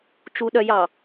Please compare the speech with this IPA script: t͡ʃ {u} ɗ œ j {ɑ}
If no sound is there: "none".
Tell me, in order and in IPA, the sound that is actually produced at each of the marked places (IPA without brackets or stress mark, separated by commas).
u, ɑ